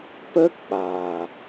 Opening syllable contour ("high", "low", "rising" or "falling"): high